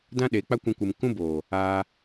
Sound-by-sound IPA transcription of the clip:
dã˦ɗe˨˦ k͡pa˦kʷɛ̃˧kʷɨ˨m kũ˦ boː˨ | aː˧

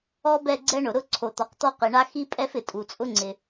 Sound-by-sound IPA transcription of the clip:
ɔ˦bɛ˦˨ ɡ͡ǀɛ˦ɳʊ˩ ɾʊ˦˨ ǀʰo˩t̪ɔ˩qt̪ɔ˦˨ qi˩ɳa˦ xi˦pʼɛ˦f ɪ˩tʼu˩t͡sʼʊ˦ŋ͡ǀɪ˩

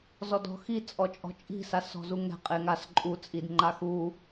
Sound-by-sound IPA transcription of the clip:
zɔdɔ̤xi t͡sʼɔt͡ʃʼɔ̤t͡ʃʼi̤ sasɔ̤zuŋɛ̤ qʼeŋas ǃʼu t͡sʼidŋ͡ǃaxu

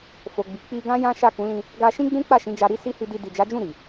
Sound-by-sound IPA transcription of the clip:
fo˨ɡ͡bi˨ k͡pi˧ɡã˦ jã˦ʃa˦˨kũ˨˦ lĩ˧ | ɡa˧ ʃĩ˦ɡ͡bũ˦k͡pa˦˨ ʃĩ˨˦d͡ʒa˧ ɾi˦si˦hi˧ di˧ di˨d͡ʒa˨˦d͡ʒũ˦˨ ɾi˨

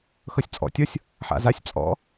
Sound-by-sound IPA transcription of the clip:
xɤsʲt͡sʼɔ̰tʲɔsʲ | ħa̰zasʲt͡sʼɔ̰

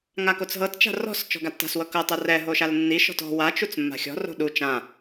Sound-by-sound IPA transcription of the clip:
ŋakot͡sɦɤtt͡ʃa̤ rɔ̤s t͡ʃɔ̤ɡatːa̤swɤ kɤtˤɤ rɛ ɦoʃalnːiʃɔ̤t ɔ̤ wat͡ʃut͡s mːa̤xʲɔ̤ro̤ ɗu t͡ʃã

